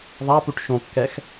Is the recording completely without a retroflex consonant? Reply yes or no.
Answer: no